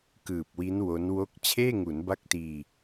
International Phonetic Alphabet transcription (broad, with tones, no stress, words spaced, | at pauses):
kɯː˨˩p̚wi˦˥n wo˦˥nwo˥˩k̚ t͡ɕʰeː˥˩ŋu˩˦n ba˦˥k̚tiː˧